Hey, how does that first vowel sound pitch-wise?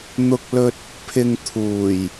high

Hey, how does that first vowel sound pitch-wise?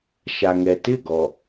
low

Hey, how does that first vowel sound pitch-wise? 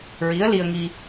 rising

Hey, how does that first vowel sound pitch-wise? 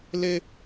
high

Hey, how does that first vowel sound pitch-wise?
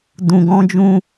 low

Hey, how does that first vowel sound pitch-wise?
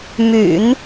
low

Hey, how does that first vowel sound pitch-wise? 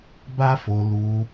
high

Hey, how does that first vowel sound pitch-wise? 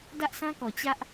high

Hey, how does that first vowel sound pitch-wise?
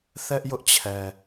high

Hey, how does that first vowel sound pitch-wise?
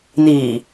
low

